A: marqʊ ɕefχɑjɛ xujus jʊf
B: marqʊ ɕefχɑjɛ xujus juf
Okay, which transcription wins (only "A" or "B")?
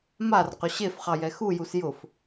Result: A